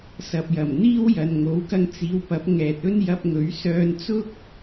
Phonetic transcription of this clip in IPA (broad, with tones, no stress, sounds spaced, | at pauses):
s ɐ˨ p̚ j ɐ˨˩ m n̪ iː˥ w j ɐ˨ n ŋ o˨˥ w k ɐ˧ ŋ t͡s iː˨˧ w p ɐ˨˥ p̚ ŋ ɛː˨ t̚ ɵ˥ n j ɐ˧ p̚ ŋ ɵ˨˥ ɥ s œː˧ n t͡s ʊ˥ k̚